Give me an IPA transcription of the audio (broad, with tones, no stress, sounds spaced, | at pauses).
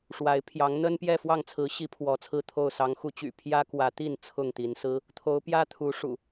ʂ w a˨˦ ɪ̯ pʰ j ɑ˨˦ ŋ n̪ ə˦ n p j ɛ˥˨ f w ɑ˥˨ ŋ t͡sʰ ɹ̩˨˦ ɕ i˨˦ pʰ w ɔ˨˦ t͡sʰ ɹ̩˥˨ t̪ʰ o˥˨ ʊ̯ s ɑ˨˦ ŋ x u˨˦ t͡ɕ y̰˨˩ pʰ j ä˦ k w ä˨˦ t̪ i˥˨ n t͡sʰ ʊ˥˨ ŋ t̪ i˨˦ n s ɹ̩˦ | t̪ʰ o˨˦ ʊ̯ p j ä˦ t̪ʰ u˨˦ ʂ ṵ˨˩